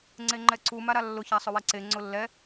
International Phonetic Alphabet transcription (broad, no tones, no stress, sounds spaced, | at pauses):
ŋ͡ǀ e ŋ͡ǃ ɛ ǀ u m a ɾ a lː ʊ ç a sˤ ʊ w ɛ ǀ e ŋ͡ǀ ʊ lː ɛ